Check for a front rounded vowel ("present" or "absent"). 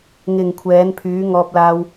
present